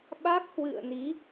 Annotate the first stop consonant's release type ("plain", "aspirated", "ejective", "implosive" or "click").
implosive